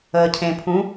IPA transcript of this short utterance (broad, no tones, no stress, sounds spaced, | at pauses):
əː cʰ ẽ pʰ ũ